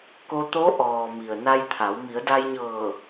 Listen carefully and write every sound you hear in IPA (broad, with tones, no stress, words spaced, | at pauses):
ko˧ t̪o˧˥ ʔɔː˩ mi˩ə̯na˧jt̪ʰa˩˧w mi˩˧ə̯da˧jɲɤː˧˩